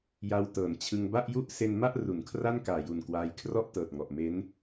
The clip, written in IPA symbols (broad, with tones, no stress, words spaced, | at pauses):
ja˧wtɤː˩˦n t͡ɕʰɯ˧ŋba˥˩ʔju˥˩ʔ se˧nma˥˩ʔ ru˩˦nkʰra˥˩nkaː˨˩ju˨˩n kwaː˧j kʰrɔ˥˩ʔtɤː˨˩t̚ŋɔ˨˩ʔ me˦˥n